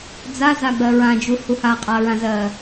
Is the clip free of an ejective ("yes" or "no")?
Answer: no